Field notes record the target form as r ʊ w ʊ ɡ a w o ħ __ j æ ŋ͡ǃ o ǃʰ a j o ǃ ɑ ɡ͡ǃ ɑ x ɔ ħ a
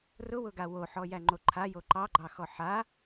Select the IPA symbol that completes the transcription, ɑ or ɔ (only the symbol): ɔ